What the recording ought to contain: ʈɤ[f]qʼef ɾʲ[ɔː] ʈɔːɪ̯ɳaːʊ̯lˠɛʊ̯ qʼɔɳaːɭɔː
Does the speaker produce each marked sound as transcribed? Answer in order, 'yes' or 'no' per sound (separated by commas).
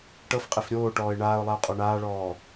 yes, no